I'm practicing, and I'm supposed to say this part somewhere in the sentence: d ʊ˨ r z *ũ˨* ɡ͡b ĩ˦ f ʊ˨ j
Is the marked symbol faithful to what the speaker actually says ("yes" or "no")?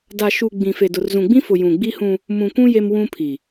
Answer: yes